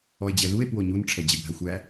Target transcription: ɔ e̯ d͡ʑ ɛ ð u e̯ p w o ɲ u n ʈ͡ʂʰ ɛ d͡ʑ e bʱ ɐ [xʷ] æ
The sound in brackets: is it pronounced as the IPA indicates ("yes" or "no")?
yes